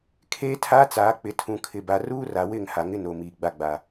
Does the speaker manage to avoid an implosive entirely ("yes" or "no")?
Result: yes